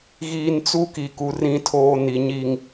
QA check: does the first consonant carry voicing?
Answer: yes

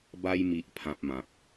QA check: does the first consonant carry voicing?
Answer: yes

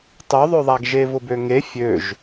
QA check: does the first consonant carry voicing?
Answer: no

